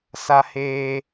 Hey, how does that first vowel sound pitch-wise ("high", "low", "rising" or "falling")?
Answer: high